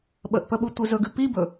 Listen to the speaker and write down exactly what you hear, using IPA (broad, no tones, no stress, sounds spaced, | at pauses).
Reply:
ɓ ə ʔ p ə ɓ u tʷ i z ɵ ɡ ʉ p i b ɵ